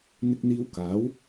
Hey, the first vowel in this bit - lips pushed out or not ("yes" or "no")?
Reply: no